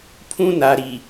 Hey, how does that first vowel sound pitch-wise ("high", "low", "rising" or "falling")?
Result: high